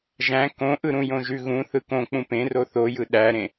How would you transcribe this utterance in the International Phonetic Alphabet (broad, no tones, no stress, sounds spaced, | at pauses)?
ʒ æ̃ k õ ʔ ɯ ɾ ũ j õ ʒ ʉ ɣ ũ θ ɯ k õ k͡p ũ p ẽ r o θ o j ɯ ɗ æ ɾ ẽ